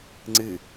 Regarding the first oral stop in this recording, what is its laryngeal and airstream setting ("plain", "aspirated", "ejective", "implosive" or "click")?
click